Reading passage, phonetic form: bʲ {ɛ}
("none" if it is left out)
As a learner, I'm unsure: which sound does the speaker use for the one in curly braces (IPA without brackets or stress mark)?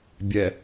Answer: ɛ